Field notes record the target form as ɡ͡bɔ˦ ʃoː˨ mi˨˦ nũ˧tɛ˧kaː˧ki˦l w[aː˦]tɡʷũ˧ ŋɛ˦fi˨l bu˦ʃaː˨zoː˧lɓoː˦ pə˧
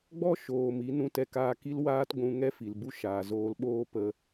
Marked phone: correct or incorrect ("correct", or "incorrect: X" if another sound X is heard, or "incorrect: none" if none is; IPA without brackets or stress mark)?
correct